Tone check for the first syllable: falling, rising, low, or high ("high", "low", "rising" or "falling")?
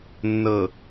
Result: low